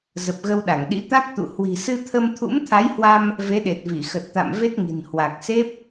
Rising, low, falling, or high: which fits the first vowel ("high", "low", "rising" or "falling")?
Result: low